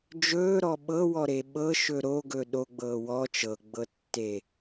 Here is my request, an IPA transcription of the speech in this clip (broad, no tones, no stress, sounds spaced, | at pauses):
d͡ʒ ɵː ɾ ɔ ɓ ɤ w ɔ ɾ e ɓ ɤ ʃ ɵ ɾ o ɡ ɵ ɗ o ɡ͡b ɤː w ɔ t͡ʃ ɤ ɡ͡b ɤ tː e